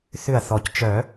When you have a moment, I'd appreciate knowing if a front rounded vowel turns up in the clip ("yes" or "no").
yes